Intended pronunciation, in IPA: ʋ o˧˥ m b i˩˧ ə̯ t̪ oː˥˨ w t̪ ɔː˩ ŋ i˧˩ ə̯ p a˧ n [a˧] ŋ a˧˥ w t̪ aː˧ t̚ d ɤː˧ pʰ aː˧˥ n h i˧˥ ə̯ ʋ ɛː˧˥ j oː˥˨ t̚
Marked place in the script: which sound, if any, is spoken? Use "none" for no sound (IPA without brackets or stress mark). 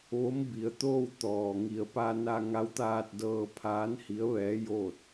a˧